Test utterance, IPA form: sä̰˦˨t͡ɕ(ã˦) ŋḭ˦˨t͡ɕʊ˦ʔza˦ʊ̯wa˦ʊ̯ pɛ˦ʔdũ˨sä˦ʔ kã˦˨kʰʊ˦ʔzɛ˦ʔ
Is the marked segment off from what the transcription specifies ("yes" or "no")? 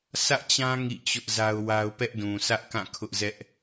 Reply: no